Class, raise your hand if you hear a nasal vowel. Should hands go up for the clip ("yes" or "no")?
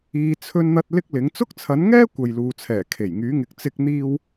no